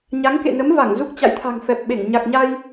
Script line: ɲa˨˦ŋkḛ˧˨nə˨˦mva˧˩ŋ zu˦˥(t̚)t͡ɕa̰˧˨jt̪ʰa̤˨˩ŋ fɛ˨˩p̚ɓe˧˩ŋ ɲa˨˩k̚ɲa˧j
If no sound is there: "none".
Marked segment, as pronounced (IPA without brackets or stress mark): k̚